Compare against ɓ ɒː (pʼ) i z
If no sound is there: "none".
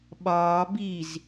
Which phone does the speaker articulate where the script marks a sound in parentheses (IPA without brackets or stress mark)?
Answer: b